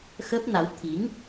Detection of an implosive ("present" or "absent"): absent